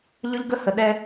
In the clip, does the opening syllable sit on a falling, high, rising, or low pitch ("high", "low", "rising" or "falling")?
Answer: high